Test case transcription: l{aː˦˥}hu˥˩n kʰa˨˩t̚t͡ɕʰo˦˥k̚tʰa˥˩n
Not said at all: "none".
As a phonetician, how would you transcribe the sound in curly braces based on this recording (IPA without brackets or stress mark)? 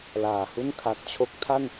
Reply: aː˨˩